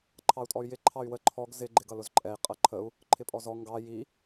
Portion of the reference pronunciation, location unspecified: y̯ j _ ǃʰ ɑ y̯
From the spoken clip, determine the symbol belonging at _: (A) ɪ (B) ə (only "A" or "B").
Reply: A